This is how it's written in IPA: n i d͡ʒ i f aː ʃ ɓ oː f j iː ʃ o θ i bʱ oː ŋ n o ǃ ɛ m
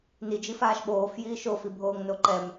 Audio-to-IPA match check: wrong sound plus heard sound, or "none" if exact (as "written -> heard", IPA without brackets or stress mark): θ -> f